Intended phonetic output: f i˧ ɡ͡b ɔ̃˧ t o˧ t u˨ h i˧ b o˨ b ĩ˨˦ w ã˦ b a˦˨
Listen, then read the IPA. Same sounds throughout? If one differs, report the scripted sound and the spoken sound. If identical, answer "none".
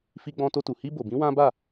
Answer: none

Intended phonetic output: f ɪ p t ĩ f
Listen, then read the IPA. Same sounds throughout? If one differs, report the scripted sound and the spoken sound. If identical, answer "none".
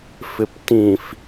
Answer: none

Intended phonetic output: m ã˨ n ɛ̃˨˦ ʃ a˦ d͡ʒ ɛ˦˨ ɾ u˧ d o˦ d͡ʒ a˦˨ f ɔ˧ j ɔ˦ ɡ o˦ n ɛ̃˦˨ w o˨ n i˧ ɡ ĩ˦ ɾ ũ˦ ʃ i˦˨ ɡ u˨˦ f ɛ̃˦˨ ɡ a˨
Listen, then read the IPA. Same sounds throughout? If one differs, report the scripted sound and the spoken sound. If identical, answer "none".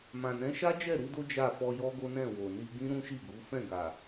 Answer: none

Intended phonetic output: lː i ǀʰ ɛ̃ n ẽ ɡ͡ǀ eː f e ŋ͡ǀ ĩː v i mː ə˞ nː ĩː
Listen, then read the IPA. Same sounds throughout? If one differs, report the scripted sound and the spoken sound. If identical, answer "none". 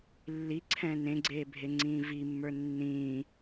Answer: f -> bʱ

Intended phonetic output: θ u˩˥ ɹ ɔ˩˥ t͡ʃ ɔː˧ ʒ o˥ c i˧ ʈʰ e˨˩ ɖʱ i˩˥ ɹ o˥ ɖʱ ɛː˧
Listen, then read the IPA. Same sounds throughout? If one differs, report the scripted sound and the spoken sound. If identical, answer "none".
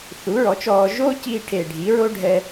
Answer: none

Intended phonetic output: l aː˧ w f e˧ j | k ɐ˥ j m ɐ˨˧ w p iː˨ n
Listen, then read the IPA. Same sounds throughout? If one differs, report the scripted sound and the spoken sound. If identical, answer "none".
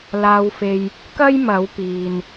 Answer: none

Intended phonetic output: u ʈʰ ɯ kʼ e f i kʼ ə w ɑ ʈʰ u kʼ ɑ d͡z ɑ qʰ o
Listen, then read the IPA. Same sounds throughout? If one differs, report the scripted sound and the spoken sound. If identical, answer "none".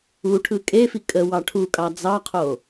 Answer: none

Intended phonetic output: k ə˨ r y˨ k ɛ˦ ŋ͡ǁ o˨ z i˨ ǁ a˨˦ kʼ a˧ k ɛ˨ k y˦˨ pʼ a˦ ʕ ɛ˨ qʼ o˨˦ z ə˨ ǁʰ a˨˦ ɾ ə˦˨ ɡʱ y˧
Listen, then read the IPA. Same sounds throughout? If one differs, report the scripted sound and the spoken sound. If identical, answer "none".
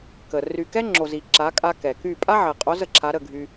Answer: none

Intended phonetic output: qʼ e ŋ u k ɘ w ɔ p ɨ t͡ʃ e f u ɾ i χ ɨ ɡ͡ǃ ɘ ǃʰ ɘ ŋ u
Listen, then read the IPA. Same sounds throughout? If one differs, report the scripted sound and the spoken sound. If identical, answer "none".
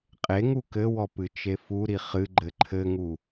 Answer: none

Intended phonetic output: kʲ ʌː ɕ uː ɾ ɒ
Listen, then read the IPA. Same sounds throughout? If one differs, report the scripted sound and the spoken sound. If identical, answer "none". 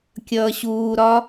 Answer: none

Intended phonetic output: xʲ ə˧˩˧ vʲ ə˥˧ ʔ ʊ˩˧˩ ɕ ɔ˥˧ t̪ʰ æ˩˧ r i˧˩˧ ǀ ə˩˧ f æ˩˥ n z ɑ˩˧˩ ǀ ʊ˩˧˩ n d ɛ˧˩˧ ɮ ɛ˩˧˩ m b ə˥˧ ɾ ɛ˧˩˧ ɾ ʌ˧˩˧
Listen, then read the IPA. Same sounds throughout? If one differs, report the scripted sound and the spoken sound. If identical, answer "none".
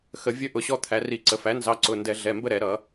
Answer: xʲ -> x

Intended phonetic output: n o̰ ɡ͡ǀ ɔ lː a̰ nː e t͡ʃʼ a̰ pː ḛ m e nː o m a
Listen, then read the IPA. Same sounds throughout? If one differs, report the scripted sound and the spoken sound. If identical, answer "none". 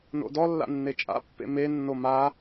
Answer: ɡ͡ǀ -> d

